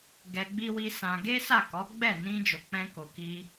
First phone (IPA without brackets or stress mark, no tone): ɡ